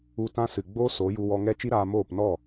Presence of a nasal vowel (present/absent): present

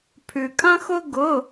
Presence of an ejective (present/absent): present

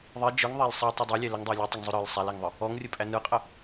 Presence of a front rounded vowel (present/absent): absent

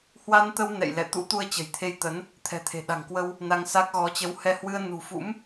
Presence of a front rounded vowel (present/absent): absent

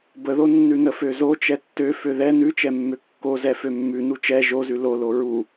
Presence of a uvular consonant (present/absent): absent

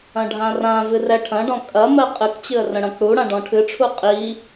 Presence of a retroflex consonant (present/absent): present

